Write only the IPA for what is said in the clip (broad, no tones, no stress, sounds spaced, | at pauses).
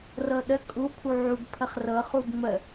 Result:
r ɤ ɗ ə kʼ u pʰ u ʕ u ɡ pʰ ə χ r ɤ χ u ɡ ŋ͡m ə